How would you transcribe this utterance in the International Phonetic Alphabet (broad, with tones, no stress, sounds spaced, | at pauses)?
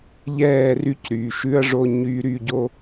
ʎ ɛː˦˨ r y˦ c ɾ yː˨ ʃ ʉ˦ ɐ̯ ʐ o˦ ɲ yː˦ ɾ yː˦ ɟ o˦